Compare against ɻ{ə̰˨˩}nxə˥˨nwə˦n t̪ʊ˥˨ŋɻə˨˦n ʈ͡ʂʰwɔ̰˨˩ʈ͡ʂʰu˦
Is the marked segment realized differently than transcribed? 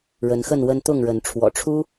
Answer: yes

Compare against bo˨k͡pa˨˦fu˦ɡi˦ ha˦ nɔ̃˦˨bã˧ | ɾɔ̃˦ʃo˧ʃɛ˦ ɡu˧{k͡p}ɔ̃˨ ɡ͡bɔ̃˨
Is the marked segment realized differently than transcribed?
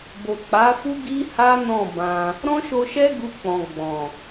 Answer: no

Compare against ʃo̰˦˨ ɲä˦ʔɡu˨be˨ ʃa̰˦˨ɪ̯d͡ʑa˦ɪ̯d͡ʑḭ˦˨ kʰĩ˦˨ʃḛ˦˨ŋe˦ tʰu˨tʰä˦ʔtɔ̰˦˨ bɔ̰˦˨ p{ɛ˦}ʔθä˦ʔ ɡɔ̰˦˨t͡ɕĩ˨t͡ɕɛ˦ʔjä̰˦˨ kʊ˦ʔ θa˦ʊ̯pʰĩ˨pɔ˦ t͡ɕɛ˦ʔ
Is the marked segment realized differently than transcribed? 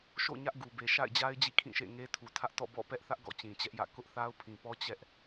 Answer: no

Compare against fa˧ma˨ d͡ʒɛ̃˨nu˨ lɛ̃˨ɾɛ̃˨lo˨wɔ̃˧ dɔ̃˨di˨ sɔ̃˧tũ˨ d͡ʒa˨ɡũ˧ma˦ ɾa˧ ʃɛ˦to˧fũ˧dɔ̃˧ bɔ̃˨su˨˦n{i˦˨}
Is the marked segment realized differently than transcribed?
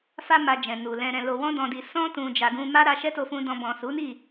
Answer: no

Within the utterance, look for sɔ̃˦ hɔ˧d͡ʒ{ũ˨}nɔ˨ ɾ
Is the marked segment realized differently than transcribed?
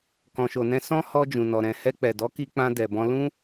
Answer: no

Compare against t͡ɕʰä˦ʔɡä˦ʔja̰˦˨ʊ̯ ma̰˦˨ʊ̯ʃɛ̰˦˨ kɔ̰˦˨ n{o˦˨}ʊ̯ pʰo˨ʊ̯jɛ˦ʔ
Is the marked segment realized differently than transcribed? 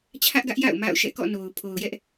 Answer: yes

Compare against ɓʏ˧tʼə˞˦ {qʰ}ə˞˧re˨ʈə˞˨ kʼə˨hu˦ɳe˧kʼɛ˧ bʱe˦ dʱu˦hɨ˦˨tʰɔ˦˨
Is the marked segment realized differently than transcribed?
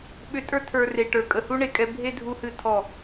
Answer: yes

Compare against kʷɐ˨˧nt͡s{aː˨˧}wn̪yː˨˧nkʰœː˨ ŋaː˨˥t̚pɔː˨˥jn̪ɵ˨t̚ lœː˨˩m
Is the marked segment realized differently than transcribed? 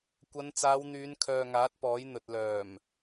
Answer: no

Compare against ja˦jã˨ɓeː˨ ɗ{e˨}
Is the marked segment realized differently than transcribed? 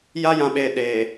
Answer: no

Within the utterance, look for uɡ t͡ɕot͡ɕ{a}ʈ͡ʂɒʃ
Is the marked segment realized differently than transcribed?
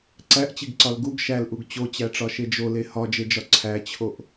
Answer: yes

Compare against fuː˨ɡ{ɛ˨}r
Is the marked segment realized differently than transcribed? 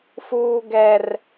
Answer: no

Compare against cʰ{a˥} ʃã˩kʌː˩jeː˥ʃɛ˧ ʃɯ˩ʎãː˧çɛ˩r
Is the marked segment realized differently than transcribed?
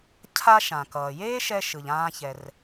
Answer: no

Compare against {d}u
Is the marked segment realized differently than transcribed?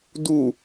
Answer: no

